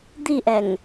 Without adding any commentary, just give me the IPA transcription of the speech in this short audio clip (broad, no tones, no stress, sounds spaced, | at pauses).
d̪ i ʔ ɛ ŋ